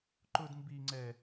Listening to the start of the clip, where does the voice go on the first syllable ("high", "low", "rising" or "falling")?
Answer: high